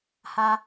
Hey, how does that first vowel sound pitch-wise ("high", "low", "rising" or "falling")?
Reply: low